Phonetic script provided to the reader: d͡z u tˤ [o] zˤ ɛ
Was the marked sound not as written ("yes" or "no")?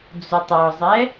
yes